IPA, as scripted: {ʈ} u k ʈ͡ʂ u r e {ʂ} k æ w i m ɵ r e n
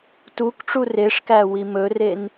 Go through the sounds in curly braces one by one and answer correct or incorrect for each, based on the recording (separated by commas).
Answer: incorrect, correct